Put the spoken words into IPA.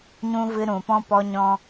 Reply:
ɲ ũ˧ v ɨ˧ ɾ ũ˨ p ɔ̃˦ p ɔ˧ ɲ ɔ̃˧

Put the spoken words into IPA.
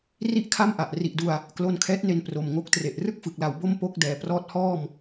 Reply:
r i˥˩ ʔ kʰ a˥˩ m ʔ a˨˩ ʔ r i˨˩ ʔ d u˧ a̯ | k l o˧ n kʰ ɛː˦˥ t̚ n e˧ n p r o˨˩ m ŋ o˦˥ k̚ t r e˨˩ ʔ r ɯ˥˩ k̚ f ɯ˨˩ k̚ l a˩˦ w b o˥˩ m p o˥˩ k̚ d ɛː˩˦ p r ɔː˦˥ t̚ h ɔː˥˩ m

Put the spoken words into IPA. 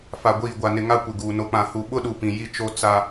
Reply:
f a˨ ɡʷ iː˨ ɡʷ a˨ n ɪ˨ ŋ a˦ kʷ ɪ˨ ɡ uː˨ n o˨ k͡p ã˨ h u˨ ɓ ʊ˦ ɗ u˨ p ĩ˨ j i˦ t͡ʃ o˦ t͡s a˦

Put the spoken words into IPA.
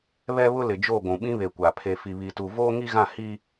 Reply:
β ɛ˦ β ʊ˦ l ɪ˨ d͡ʒ o˦˨ ɡʷ ũ˨ ɓ ĩ˦ β e˨ kʷ a˨ pʰ e˨ f i˨ β i˨ t u˨ v oː˦ ŋ i˦ ɣ ã˦˨ h i˦

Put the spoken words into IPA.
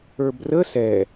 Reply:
ə˞ b r ə s ɛ

